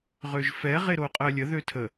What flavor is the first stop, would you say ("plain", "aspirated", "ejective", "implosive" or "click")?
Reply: ejective